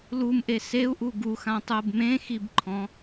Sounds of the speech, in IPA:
l u m ʔ e s e u̯ ʔ u ɡ u x ã tˤ ʊː b m ẽ x i b ǃʰ ɔ̃

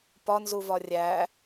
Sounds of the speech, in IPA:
p ɒ n z u v ɒ rʲ æ

